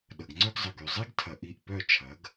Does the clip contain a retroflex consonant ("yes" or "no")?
no